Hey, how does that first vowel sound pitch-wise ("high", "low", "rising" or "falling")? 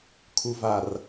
low